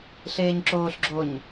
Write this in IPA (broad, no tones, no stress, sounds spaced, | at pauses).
ɬ eː ɲ ǁ oː ɬ ɡ͡ǁ o ɲ